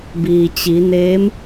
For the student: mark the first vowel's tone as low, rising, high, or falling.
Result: low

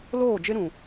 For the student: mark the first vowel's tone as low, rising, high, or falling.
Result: falling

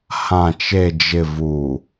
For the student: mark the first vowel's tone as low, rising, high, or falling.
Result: low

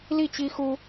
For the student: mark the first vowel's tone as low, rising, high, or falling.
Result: falling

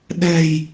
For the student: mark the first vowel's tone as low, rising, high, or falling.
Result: low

